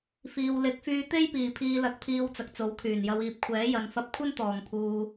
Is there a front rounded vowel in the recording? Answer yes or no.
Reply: yes